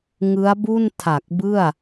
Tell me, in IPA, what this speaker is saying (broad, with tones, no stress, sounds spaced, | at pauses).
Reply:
ŋ ɯ˦˥ a̯ b u˥˩ n tʰ a˨˩ k̚ b ɯ˥˩ a̯